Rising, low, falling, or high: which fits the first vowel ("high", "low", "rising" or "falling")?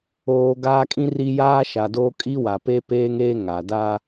low